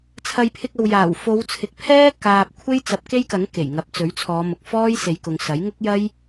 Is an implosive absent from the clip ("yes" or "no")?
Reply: yes